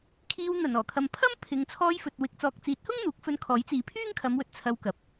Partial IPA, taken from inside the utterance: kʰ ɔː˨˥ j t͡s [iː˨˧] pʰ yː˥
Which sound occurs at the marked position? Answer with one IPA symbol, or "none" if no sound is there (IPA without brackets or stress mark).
iː˨˧